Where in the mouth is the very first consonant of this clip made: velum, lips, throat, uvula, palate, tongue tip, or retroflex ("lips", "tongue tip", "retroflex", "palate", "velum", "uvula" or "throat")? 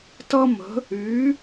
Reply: tongue tip